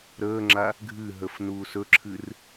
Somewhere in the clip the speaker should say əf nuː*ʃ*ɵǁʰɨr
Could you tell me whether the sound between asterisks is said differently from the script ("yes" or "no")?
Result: yes